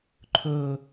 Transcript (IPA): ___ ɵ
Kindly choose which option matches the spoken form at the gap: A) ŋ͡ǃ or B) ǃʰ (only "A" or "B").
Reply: B